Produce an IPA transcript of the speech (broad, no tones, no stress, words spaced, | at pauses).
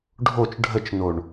ɖʱot͡ʃ ɖʱət͡ʃnoɳ